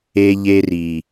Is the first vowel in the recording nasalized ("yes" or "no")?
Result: no